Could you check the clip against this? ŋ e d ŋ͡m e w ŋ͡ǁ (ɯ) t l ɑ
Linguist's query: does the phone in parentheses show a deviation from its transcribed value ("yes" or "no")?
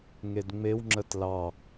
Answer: yes